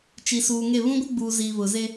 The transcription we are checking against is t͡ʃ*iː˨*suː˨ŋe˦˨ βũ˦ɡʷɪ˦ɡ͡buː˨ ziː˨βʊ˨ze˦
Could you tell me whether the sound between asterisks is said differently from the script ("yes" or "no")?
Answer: yes